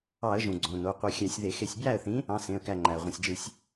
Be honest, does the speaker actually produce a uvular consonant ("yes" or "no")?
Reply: yes